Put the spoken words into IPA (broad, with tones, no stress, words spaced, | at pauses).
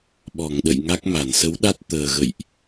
ɓɔ˧˩ŋɗə̰˧˨jŋa˦˥k̚ ma˧˩nsə˨˦w ɗa˦˥t̚ t̪əː˨˩ɣə̰˧˨jʔ